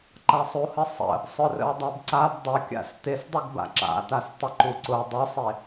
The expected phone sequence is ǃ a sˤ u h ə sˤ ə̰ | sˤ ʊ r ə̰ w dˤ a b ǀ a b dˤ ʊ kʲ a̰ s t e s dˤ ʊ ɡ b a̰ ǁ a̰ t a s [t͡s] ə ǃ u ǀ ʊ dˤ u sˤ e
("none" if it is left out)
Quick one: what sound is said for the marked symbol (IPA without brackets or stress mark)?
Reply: tˤ